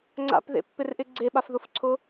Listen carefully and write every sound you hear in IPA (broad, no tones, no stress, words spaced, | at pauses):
ŋ͡ǀa̰pðḛpːɪrʔɪ ɡ͡ǀeɓafðʊfǀʰʊ